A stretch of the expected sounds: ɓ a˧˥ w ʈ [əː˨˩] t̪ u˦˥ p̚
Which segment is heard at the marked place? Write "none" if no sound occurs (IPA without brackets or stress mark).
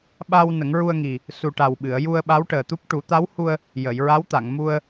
əː˨˩